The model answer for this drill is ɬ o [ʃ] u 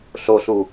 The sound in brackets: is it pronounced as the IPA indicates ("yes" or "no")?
no